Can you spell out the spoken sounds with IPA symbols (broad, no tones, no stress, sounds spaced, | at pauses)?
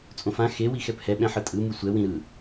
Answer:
t͡sʼ õ f ã x e w i x ɛ p h ɛ ɓ ɛ̃ ħ ɯ tʼ ɯ m ɯ sʷ ɛ w ĩ ɾ ɯ